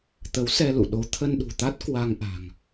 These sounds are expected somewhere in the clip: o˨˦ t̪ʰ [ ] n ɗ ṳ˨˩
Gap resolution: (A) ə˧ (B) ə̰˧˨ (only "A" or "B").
A